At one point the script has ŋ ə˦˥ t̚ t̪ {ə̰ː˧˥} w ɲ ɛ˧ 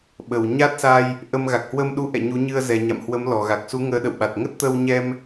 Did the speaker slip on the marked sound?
yes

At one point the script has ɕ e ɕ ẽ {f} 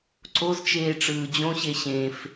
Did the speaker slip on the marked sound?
no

